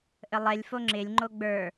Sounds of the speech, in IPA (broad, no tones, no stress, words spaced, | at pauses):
ʔəlˠɛlʲfo ŋ͡ǁɪlʲ ŋ͡ǃoɡ͡bə˞